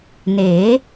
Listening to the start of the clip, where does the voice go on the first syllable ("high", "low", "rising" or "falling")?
rising